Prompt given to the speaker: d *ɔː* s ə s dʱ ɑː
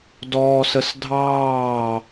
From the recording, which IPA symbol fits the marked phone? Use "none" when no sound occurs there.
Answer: ɔː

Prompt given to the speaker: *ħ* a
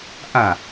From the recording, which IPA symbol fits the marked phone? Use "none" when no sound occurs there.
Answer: ʔ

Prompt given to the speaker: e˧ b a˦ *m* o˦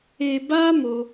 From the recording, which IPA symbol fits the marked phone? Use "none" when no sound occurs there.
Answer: m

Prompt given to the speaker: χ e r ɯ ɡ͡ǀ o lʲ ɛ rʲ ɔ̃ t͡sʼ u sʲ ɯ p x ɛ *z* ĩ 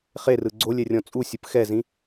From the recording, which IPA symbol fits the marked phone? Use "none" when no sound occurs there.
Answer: z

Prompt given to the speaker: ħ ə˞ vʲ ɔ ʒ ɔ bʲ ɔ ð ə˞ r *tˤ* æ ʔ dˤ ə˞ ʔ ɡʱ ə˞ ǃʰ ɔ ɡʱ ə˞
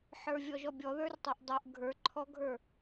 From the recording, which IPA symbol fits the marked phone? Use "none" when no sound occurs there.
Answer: tˤ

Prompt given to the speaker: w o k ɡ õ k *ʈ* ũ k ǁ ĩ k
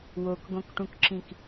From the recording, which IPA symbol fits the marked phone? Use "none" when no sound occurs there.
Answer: ʈ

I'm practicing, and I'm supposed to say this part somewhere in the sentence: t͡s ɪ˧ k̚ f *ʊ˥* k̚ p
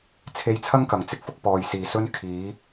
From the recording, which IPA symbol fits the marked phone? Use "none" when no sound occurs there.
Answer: ʊ˥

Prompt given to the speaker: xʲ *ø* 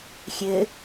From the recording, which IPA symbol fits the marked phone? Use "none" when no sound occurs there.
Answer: ɘ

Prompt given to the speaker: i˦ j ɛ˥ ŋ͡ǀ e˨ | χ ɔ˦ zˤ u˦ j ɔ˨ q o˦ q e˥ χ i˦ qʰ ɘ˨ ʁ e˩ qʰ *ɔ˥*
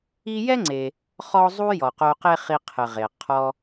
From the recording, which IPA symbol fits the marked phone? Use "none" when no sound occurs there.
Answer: ɔ˦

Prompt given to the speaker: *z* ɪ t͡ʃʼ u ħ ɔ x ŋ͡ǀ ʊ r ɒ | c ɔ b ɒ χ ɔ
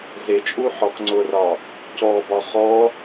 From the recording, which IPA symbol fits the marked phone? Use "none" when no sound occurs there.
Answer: z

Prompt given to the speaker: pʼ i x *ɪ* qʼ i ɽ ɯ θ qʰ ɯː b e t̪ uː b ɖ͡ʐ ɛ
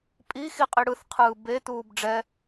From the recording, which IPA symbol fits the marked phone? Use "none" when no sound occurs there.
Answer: i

